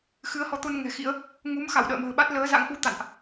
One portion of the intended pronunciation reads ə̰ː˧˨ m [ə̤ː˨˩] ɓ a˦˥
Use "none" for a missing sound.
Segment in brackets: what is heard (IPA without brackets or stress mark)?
ə̤ː˨˩